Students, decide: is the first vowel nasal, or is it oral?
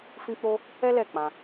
nasal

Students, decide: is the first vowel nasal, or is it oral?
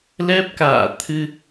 oral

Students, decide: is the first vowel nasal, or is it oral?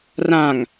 nasal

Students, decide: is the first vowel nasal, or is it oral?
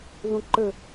nasal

